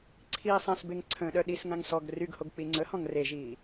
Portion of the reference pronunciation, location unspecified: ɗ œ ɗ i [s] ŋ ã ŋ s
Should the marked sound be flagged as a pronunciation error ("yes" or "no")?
no